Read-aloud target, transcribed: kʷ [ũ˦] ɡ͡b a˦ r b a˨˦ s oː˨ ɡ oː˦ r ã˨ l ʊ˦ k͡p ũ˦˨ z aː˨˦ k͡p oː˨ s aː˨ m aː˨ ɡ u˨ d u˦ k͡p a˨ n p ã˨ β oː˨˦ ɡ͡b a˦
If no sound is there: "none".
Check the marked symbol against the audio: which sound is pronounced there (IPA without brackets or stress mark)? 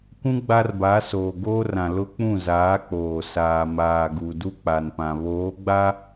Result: ũ˦